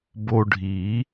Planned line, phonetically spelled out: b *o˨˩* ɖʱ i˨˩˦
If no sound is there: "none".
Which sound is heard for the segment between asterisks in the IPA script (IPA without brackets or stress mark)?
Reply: o˧